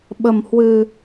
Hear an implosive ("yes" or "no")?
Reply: yes